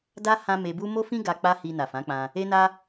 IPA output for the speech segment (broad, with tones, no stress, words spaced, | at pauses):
da˦ hã˦ me˧bu˦ mo˦fĩ˦ ɡa˧ k͡pa˦hi˧ na˨fã˨˦k͡pã˧ | e˦na˦